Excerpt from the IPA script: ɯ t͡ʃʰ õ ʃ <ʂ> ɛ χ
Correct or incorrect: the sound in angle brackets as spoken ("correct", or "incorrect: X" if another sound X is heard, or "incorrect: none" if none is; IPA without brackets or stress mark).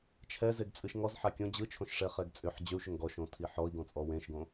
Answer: correct